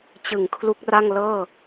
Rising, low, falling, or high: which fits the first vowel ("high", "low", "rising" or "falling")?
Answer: low